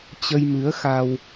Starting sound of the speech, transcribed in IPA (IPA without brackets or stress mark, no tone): t͡ɕ